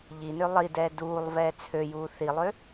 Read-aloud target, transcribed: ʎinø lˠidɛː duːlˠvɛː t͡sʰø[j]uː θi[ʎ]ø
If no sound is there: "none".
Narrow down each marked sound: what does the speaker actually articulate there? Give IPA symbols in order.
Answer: j, lˠ

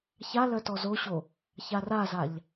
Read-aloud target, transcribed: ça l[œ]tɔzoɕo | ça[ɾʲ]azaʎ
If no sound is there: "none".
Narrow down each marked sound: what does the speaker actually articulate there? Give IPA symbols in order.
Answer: œ, r

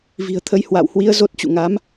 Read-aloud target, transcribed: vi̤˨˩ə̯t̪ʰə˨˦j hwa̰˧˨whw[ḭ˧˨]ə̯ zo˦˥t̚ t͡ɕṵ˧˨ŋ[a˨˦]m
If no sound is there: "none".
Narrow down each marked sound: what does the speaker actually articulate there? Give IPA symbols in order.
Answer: i˨˦, a˨˦

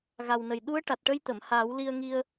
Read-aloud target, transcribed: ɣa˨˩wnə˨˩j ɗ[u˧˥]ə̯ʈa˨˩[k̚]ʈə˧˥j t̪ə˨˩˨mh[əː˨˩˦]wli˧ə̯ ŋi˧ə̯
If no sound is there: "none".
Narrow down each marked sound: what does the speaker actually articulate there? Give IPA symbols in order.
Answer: u˧˥, t̚, aː˨˩˦

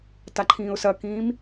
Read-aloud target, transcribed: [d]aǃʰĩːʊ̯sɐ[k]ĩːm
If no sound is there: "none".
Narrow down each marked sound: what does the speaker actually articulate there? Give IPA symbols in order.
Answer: t, k

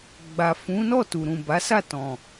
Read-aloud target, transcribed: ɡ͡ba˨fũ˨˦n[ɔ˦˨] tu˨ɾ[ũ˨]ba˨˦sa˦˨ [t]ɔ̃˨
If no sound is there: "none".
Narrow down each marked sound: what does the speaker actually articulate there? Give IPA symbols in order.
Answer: ɔ˦˨, ũ˨, t

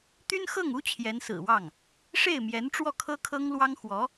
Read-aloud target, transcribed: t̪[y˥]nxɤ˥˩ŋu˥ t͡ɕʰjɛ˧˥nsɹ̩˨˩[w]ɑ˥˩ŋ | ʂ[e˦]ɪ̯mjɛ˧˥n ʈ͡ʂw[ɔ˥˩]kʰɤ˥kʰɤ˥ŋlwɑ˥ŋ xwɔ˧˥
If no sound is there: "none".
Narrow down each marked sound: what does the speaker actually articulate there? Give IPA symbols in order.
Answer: y˥, w, e˥˩, ɔ˥˩

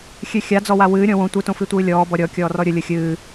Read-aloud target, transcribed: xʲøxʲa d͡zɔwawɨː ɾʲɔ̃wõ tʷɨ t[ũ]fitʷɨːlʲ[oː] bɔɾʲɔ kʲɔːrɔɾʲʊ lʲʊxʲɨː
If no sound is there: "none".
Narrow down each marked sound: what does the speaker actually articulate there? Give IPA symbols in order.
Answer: õ, ɔː

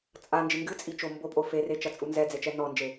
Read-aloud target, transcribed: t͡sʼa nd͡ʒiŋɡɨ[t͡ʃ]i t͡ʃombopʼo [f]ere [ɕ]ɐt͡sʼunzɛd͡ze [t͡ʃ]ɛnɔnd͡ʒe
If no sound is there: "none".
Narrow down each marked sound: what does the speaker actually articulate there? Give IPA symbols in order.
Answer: t͡sʼ, f, t͡ʃ, t͡ʃ

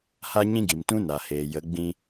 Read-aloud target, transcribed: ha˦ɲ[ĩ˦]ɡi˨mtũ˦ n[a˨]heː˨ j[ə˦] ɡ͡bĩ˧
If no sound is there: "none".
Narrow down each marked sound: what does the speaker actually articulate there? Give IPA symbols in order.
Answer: ĩ˦, a˨, ə˨˦

